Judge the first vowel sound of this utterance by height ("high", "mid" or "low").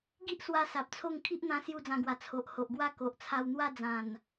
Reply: high